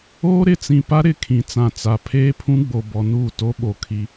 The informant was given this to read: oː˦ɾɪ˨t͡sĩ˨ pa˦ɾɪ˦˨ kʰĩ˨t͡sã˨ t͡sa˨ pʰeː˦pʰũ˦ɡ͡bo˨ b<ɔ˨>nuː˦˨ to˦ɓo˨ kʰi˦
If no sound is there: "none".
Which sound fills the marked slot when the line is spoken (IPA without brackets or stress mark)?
ɔ˨